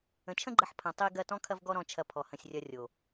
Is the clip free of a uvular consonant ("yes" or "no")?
yes